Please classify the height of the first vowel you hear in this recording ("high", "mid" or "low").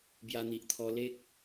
low